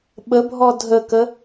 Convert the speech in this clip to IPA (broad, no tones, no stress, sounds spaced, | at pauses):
ɓ ə bʱ ɔ dʱ ə k ə